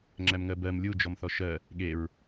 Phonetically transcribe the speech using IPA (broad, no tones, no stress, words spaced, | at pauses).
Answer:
ŋ͡ǁæmŋɜbɜm lʲu d͡ʒɔmθɔʃɜ | ɠeɹ